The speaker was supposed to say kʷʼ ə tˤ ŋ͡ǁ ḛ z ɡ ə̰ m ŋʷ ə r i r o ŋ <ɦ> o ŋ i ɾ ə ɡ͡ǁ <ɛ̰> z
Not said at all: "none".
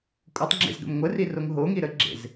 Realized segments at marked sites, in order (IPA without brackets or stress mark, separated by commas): ɦ, ḛ